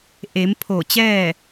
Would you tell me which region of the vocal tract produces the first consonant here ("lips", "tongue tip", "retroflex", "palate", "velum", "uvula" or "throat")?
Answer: throat